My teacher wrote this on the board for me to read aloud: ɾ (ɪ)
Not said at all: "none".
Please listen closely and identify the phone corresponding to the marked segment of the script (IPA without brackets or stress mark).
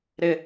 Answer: ɪ